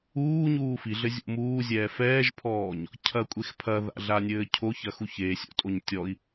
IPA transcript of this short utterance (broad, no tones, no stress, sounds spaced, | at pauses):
uː ɲ uː f i ɮ ɘ zʲ ṵ m uː zʲ ɛː f ɛː ʒ pʰ ɔː ɲ | cʰ ɐ kʷʼ e x pʰ ɐ ð a̰ ɮ a nʲ ɘː cʰ o ç ɐ x u ç e sʲ o̰ tʼ o ɲ tʲ ɔ i̯